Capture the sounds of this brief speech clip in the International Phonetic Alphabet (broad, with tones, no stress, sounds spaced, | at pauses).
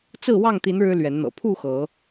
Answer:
t͡s ɹ̩˥˨ w ɑ˥˨ ŋ t̪ i˨˦ n ɻ ɻ̩˦ l ɥ ɛ˨˦ n n̪ ɤ̰˨˩ pʰ u˥˨ x ɤ˨˦